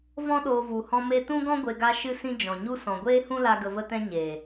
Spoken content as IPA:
v ɔ̃˧ ɗ oː˨ v u˨ h ɔ̃˦ m e˧ t ũ˦ ɡ ɔ̃˦ ɡʷ e˧ ɡ a˧ ʃ ɨ˦ s ĩ˦ d͡ʒ ɔ̃˨ ɲ u˦ s ɔ̃˨ ɡʷ eː˦ h ũ˦ l a˧ ɡ ə˧ v ə˦ t ɛ̃˦ ɲ e˨

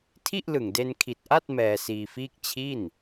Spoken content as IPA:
tʰ i˥˩ ʔ l ɯ˨˩ ŋ d e˧ n kʰ i˨˩ t̚ ʔ a˥˩ t̚ m ɛː˧ s iː˧ f iː˥˩ k̚ t͡ɕʰ i˥˩ n

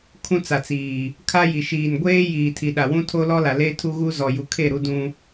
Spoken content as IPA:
kʰ ũ˦ t͡s a˨ t͡s iː˨ | kʰ a˦ j i˨ ʃ iː˨ n ɡʷ eː˦ j iː˨ tʰ i˨ ɗ a˨ w ũ˦ tʰ o˦ l ɔ˦ l a˨ l e˦ tʰ u˦ ɣ u˦ z ɔ˨ j u˨ kʰ e˦˨ ɾ u˦ d ũ˦

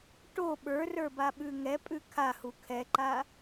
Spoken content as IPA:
ʈ o ɓ ə˞ r ə˞ b a ɓ ʉ ŋ ɛ pʼ ʉ kʰ a h u kʰ ɛ ǃ a

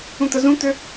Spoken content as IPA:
ũ t̪ ə z ũ t̪ ø

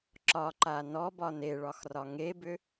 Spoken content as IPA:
ǁ ɒ ǃ a n ɔ b ɒ n e ɭ ɒ x r ɒ ŋ e b ʏ

